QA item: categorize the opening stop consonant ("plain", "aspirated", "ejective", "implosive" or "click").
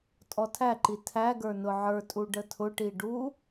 ejective